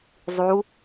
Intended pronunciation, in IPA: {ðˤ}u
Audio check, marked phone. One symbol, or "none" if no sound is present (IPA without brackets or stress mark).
zˤ